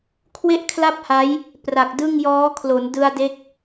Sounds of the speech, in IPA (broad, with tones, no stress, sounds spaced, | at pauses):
kʰ w e˥˩ ʔ kʰ l a˥˩ p̚ h a˦˥ j | p r a˨˩ k̚ d ɯ˥˩ ŋ j ɔː˦˥ kʰ l o˩˦ n d ɯ˧ a̯ d e˦˥ k̚